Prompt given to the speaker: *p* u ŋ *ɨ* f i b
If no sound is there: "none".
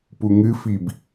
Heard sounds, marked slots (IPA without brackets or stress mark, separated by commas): p, ɨ